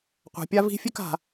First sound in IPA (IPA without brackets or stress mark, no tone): qʷ